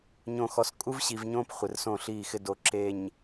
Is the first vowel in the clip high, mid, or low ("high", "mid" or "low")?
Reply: mid